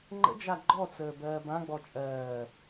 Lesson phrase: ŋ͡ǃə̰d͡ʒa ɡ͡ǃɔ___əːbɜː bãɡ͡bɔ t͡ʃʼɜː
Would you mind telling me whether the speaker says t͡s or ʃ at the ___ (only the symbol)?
t͡s